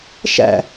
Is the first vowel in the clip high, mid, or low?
low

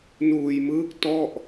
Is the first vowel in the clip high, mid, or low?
high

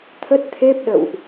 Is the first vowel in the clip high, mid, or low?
mid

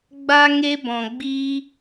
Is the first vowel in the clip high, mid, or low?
low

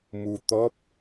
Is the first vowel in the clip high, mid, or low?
high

